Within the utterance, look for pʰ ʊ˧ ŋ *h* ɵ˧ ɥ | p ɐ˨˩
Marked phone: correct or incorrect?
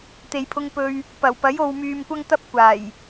incorrect